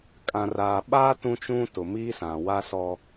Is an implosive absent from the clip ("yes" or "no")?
no